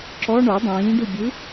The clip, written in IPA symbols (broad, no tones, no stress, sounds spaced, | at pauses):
ǁ ɔ ɳ o dˤ ĩː ɖ u bʲ ɯ